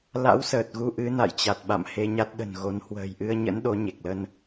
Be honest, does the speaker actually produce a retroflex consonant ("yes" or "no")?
no